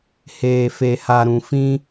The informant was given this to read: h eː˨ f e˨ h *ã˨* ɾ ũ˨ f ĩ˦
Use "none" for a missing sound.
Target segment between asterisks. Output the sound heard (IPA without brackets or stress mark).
a˨